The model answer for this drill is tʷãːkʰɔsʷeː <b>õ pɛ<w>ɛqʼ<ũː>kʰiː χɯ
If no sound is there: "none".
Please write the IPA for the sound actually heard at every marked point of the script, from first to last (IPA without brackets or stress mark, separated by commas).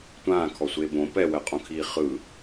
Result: b, w, ũ